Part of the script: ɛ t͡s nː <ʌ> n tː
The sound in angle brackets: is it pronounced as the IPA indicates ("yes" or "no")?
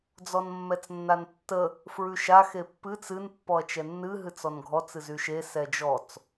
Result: no